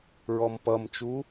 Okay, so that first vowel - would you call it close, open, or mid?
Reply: mid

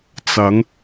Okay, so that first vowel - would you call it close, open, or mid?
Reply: open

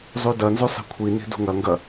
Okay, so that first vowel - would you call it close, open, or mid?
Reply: close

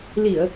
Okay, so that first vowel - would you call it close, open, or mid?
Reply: close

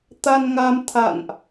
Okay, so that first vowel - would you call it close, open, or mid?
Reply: open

